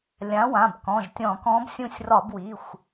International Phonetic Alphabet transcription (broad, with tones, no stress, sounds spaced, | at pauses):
lʲ ã˩˥ w ã˩˧˩ b k ɔ̃˩˧˩ ʒ tʲ ɔ̃˧˩˧ k ɔ̃˧˥ b sʲ ũ˦˨ sʲ r ɒ˧˩˧ b w i˩˧˩ xʷ